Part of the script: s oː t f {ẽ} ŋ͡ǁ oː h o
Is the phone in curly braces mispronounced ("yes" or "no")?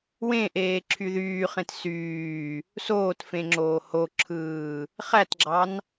no